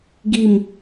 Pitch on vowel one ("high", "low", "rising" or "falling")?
falling